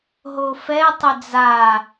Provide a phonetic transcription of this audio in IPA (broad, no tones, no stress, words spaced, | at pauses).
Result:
ɦofɛ tˤʏd͡za